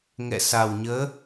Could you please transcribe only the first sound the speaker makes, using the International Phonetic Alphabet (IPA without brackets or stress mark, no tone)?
ŋ